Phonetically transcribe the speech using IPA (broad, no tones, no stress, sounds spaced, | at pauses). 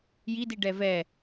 j i d i ɖ ɛ v ɛ